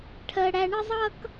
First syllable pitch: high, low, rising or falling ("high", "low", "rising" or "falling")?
high